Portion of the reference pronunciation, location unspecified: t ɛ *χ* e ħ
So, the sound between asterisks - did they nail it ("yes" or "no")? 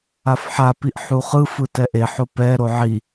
no